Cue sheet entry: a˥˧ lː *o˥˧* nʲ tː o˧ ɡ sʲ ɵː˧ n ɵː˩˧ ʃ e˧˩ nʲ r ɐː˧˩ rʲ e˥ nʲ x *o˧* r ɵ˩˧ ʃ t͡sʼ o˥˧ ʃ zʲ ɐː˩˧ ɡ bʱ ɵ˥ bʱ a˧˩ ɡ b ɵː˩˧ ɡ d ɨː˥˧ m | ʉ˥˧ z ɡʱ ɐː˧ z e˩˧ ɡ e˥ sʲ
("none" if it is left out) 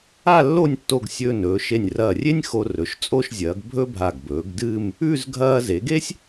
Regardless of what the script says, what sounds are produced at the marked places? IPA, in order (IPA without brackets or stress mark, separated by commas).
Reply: o˥˧, o˧